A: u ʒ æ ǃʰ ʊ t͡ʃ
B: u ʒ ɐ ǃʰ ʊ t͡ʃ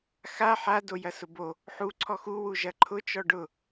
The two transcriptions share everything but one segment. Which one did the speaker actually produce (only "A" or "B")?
B